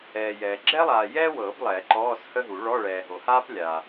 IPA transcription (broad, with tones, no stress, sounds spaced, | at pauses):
ɛː˨ j ɛː˨ ɡ͡ǁ ɛ˥ lˠ aː˨ j ɛː˥ w ɤː˨˩˦ b lˠ ɛː˨˩˦ ǃ ɔː˧˥˧ s h ə˥ ɦ u˨˩˦ ɭ ɔ˧˥˧ ɭ ɛː˨ ɦ o˨ h aː˥ p lʲ aː˨